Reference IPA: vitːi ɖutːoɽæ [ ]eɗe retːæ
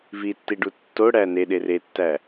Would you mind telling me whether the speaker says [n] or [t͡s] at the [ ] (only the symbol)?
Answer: n